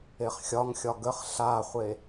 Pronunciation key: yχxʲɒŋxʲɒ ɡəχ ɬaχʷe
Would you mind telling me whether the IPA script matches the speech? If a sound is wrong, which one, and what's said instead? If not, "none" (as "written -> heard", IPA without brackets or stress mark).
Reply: y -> e